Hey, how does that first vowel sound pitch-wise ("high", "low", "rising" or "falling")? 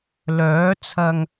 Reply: rising